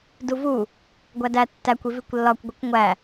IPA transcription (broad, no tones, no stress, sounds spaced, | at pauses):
d u v u | ɡʷ æ d æ tː æ kʷ i v i kʷ lː ɒ kʷ ɡʷ i kʷ ŋʷ æ